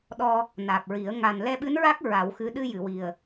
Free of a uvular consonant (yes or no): yes